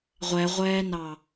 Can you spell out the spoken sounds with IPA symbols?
ʁʷ ɛ ʁʷ ɛː n ɑ

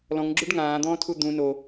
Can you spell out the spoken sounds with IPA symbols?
l ɔ̃ ŋ ɡ͡ǁ u ɖ ŋ ãː d̪ ɔ̃ː tʰ u d̪ ũ n o

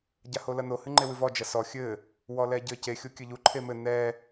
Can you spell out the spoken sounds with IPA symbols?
ɟ a h o l ɐ n o h ɨ ŋ͡ǃ e w ɨ v ɔ d͡ʒ ɐ s ɔ xʲ ɘ | w ɔ l ɛ ɟ ɘ c e xʲ o kʲ ɘ ʎ u ǃʰ e m ɘ n ɛ

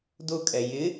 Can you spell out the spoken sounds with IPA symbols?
d ʊ kʼ ɛ j ɪ

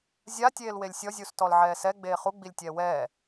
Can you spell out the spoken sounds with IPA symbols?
zʲ a tʲ eː l w e lʲ sʲ ɔ zʲ u s t ɔ l ʕ ɛː s ɛ ɡ͡b eː χ u ɡ͡b i lʲ tʲ ɛː w ɛː

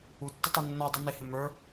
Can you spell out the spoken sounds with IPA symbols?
u tː ə tˤ u nː ɔ dˤ u n ɪ h ɪ m ə˞

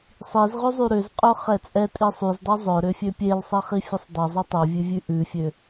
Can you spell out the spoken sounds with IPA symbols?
sˤ i z ʁ ø zˤ y ɾ ø z qʼ œ χ ɛ t͡sʼ ɛ tʼ i sˤ y z dˤ y zˤ œ ɾ ø fʲ ø pʲ e l sˤ ɛ χ i fʲ ə sˤ dˤ o zˤ ʉ tˤ o vʲ ʉ vʲ ʉ ʔ ʉ fʲ ø

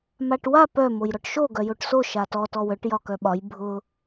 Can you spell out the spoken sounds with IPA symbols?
m a ʈ w a p œ m o j ɾ ɔ ʈ ʃ o ɡ œ j o ʈ s o ʃ a t ɔ t ɔ w œ ʈ j ɒ k œ ɓ ɒ j bʱ ʊ

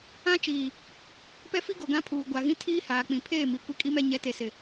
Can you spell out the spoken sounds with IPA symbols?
ã˦ t͡ʃ iː˨ | p ɛ˦ f i˦ ɡ o˨ ɡ ã˦ pʰ uː˨ ɡʷ a˨ ɣ ĩ˦ tʰ iː˦ h aː˨ k͡p ĩ˨ pʰ eː˦˨ m i˨ kʷ i˦ kʼ i˦ m ɛ˦ ɲ ɛ˨˦ t e˨ s ɪ˨

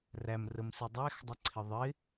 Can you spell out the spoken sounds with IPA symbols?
r æ m r ə m s i dˤ æ x dˤ ə ǀʰ ɪ ðˤ ɪ

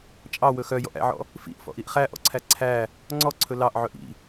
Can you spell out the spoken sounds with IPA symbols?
t͡ʃʼ ɑ w ɵ x œ j ɔ̰ ʔ æ̰ ʕ ɔ̰ | f ḭ ʔ f ɔ̰ ʔ i ʔ χ æ ʔ ɔ̰ ǀʰ æ ǀʰ æ | ŋ͡ǀ ɔ ǀʰ ɵ l ɑ ʔ ʕ ɵ ʔ ḭ

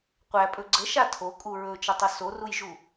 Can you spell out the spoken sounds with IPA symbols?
qʷ æ pʼ ɵ ɡ͡ǀ ə ʃ a tʰ o kʼ u ɹ ɵ t͡ʃ ə tˤ ɵ s o r u j ʒ u

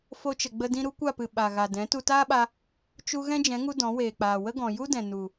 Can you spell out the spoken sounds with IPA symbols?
f o˧ t͡ʃ ə˨ ɡ͡b ə˧ d ĩ˧ ɾ u˦ kʷ a˦˨ p ɨ˨ ɓ a˨ ɣ a˨ d ɛ̃˨˦ t u˧ t aː˦ ɓ a˧ | t͡ʃ u˧ ɣ ɛ̃˦ d͡ʒ ɛ̃˨˦ ŋ u˧ d ɔ̃˨˦ w eː˨ k͡p aː˨ w ə˦ ɡ ɔ̃˨ j u˦ d ɛ̃˨ n u˨

